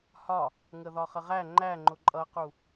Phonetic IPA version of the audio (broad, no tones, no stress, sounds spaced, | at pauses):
h ɒ | ŋ ə ð ɒ χ ə ʁ æ ŋ͡ǃ æ ŋ͡ǃ ʊ ǃʼ ʌ q u